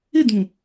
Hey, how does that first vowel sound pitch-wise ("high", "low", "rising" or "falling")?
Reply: falling